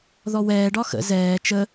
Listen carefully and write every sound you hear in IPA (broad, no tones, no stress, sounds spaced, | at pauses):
ð ɔ w ɛː ɖ ɒ x ə̰ z ɛː t͡ʃ ə